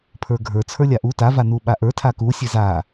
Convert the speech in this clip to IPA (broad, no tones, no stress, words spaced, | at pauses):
pʰə˞ɡʱə˞ t͡sʰə˞lʲaʔu ta vanuɓaʔə˞ tʰaku sʲeza